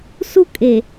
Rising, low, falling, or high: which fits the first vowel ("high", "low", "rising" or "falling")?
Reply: high